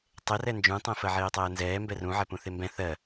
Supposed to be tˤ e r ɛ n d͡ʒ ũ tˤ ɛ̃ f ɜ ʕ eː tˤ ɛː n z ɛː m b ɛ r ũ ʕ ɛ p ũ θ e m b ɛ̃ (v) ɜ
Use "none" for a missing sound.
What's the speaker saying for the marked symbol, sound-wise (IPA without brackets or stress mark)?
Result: θ